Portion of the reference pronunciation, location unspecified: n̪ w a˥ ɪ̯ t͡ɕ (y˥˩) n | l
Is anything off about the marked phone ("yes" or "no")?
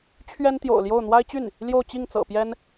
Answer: no